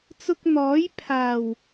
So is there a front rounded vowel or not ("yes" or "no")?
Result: no